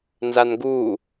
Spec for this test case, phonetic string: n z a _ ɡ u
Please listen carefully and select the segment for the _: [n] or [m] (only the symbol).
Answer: n